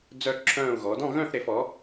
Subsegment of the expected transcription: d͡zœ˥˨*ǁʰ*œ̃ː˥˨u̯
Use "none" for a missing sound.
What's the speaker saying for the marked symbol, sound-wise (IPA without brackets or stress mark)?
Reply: ǁʰ